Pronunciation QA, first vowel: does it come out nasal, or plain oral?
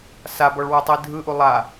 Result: oral